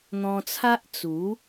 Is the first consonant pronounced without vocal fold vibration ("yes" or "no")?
no